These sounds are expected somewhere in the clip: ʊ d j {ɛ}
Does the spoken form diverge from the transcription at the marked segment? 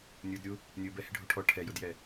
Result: no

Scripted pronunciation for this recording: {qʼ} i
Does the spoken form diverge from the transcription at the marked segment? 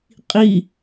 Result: no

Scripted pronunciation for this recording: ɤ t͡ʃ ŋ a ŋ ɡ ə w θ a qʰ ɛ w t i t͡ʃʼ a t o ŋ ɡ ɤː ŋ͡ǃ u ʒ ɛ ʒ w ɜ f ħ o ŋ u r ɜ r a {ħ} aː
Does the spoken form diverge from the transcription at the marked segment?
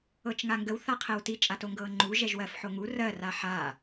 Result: no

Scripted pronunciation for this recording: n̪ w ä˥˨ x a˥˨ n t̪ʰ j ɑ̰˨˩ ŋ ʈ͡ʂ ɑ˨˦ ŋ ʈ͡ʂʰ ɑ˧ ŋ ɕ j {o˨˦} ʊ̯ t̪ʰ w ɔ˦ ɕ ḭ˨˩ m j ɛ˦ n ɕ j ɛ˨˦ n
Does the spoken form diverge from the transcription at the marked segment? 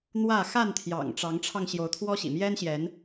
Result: no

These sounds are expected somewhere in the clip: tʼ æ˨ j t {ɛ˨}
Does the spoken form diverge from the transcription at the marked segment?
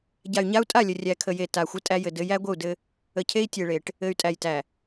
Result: yes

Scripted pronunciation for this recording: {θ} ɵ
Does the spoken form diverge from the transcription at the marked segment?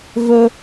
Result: yes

